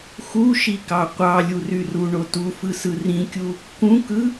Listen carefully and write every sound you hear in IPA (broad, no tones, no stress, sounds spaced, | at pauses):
x u ʃ i k ɑ qʷ ɑ lʲ u r y r u ɳ o t u f ɯ s ɯ r ĩ kʲ u | k ũ k ɯ